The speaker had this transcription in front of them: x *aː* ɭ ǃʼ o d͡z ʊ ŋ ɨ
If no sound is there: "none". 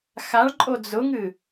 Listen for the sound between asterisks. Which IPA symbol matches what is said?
a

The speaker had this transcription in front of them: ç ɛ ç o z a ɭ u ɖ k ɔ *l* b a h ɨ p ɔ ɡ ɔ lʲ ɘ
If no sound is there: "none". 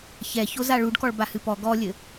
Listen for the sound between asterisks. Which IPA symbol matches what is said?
ɭ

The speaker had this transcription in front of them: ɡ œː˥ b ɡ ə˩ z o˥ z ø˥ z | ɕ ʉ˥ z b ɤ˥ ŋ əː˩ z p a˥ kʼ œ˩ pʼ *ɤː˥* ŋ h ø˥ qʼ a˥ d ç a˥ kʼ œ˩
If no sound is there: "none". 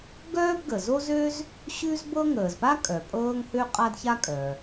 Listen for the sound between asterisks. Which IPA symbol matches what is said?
ɤː˥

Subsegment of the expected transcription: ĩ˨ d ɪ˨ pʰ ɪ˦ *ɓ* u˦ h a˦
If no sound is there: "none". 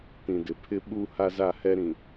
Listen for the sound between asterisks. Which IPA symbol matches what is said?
ɓ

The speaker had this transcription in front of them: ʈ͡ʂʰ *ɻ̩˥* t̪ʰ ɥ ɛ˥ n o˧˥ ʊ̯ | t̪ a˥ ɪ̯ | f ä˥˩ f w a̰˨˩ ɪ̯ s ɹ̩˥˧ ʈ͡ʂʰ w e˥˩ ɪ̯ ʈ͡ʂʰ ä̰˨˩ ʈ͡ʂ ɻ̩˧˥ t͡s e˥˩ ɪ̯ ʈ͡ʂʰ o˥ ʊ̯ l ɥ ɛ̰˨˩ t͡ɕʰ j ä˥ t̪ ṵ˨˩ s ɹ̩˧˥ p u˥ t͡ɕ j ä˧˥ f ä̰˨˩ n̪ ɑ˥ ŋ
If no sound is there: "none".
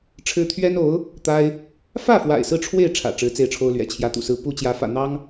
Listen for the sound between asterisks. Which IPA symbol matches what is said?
ɻ̩˥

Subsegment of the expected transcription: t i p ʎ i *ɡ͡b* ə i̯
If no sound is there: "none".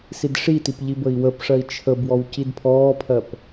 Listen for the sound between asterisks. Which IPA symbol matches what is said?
b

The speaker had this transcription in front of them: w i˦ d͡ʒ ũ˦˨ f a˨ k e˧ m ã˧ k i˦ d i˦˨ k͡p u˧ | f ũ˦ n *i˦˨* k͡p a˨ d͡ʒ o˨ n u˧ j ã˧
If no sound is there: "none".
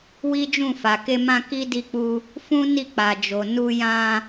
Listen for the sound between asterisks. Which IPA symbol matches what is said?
i˦˨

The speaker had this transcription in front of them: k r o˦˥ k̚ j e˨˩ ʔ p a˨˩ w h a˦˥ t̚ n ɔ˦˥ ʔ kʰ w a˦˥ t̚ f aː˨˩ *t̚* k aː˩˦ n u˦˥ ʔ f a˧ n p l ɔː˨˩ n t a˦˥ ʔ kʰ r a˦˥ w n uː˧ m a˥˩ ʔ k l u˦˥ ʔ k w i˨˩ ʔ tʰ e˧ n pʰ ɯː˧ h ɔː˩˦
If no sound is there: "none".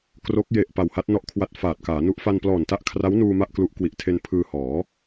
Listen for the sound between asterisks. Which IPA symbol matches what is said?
t̚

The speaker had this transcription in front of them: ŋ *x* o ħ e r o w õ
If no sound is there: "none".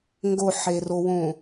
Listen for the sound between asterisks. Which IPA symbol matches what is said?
ɡ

